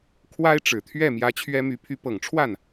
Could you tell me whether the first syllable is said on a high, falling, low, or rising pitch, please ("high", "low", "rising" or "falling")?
high